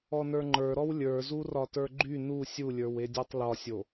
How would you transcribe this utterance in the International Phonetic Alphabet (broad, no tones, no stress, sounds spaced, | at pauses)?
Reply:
ɔ n ə˞ ŋ͡ǃ ə˞ ɾ ɔ w lʲ ə˞ z u r ɒ t ə˞ ɡ͡ǃ y n u sʲ u lʲ ə˞ w e dʲ ɔ tˤ l ɒ sʲ o